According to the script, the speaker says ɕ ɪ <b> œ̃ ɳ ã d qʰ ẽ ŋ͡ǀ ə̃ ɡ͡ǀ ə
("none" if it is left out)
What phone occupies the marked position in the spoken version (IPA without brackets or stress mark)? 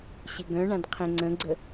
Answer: ɡ